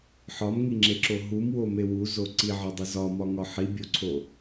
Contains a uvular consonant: no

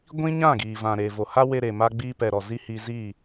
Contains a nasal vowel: yes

